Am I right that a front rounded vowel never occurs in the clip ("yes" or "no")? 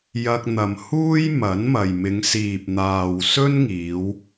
yes